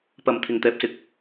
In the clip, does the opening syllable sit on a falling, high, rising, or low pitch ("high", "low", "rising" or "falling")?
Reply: low